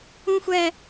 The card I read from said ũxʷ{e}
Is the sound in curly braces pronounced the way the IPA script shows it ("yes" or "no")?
no